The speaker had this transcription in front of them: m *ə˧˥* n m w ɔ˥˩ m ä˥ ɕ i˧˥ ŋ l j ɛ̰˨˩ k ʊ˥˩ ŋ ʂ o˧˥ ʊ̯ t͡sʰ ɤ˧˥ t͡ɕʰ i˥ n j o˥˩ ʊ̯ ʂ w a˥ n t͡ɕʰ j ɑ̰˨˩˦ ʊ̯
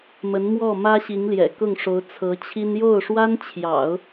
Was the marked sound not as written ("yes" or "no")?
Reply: no